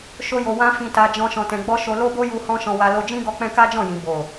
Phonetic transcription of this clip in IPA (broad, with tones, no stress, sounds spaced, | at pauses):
ʃ o˦ j o˧ w ã˦ f ĩ˧ t a˧ d͡ʒ ɔ̃˧ ʃ ɔ̃˧ t ɛ̃˧ ɡ͡b ɔ˦ ʃ o˧ l o˦ b o˦ j u˧ h ɔ̃˦ ʃ ɔ̃˧ w a˧ l o˧ d͡ʒ ĩ˦ ɡ ɔ˦ k͡p ɛ̃˦ k a˦ d͡ʒ ɔ̃˦˨ j ĩ˨ b o˨